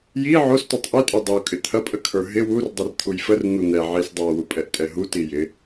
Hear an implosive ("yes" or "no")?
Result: no